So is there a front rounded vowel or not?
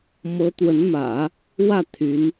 yes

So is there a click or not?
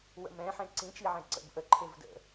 yes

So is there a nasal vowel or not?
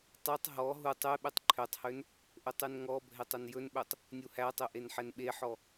no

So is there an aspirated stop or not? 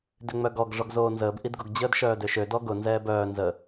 no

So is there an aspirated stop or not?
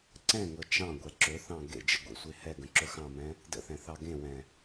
no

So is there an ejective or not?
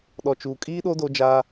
yes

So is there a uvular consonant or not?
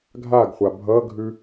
yes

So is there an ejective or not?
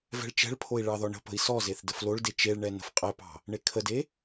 yes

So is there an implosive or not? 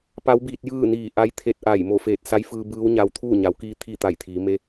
no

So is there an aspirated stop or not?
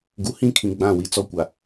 yes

